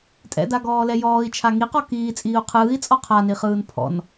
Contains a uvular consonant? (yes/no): yes